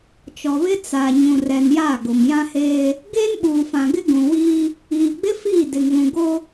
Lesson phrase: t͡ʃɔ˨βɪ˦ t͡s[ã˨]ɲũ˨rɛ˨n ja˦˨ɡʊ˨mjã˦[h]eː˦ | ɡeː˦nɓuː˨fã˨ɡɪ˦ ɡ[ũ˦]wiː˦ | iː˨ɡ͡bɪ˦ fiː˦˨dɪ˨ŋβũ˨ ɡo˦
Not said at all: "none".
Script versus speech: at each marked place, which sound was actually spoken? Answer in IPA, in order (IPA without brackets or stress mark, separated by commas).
a˨, h, ũ˨